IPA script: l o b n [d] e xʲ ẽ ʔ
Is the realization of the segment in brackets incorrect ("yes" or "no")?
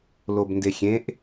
no